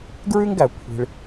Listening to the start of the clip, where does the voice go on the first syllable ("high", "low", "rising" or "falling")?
high